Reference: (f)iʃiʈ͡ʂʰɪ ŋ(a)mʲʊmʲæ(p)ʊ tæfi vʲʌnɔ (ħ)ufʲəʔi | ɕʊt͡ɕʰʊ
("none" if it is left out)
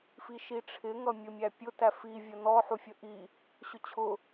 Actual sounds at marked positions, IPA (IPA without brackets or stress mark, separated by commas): f, ʌ, pʲ, ħ